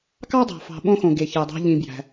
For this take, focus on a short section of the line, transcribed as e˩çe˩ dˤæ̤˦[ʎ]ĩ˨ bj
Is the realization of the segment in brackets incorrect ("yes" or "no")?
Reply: no